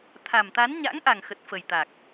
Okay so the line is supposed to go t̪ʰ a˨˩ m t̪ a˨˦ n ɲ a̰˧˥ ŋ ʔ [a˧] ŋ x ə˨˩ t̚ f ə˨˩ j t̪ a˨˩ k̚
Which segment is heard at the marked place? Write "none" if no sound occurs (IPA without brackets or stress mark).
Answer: a˨˩